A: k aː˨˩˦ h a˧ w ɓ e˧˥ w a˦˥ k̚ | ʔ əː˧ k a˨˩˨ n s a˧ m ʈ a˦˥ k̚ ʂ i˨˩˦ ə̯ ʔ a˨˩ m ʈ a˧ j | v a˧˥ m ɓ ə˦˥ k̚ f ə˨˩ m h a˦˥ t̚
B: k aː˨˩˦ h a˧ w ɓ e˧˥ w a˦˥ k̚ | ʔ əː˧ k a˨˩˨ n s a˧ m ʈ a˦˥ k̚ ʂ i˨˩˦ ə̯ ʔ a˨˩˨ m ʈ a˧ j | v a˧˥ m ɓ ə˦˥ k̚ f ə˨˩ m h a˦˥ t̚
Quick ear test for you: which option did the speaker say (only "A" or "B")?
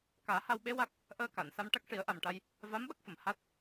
A